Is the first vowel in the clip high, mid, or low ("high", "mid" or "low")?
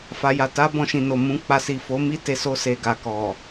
low